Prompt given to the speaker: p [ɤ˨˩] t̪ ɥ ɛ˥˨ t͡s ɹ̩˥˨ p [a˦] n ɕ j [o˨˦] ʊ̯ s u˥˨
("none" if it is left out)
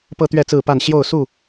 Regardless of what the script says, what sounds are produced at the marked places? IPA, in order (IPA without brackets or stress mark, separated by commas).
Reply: ɤ˦, a˥˨, o˥˨